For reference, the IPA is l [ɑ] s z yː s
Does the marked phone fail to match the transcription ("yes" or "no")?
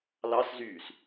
no